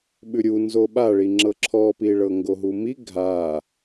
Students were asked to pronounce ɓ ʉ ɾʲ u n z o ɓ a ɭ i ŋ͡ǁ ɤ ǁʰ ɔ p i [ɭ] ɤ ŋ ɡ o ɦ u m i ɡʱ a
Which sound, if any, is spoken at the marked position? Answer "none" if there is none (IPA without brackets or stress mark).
ɭ